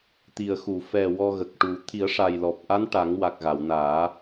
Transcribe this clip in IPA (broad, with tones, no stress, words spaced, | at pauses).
t̪i˨˩ə̯xu˨˩˨ fɛ˨˩ wɔ˧ ɣə˨˩k̚ʈu˨˩˦ t̪ʰi˨˩˦ə̯ʂa˨˩j lɔ˨˩p̚ ʔa˧˥n ʈa˨˩˦ŋwa˨˩k̚ ɣa˨˩˨wnaː˨˩˦